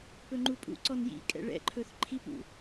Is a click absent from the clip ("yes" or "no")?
no